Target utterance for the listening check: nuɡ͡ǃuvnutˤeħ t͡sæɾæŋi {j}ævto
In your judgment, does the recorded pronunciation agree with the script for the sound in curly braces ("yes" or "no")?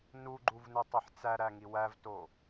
no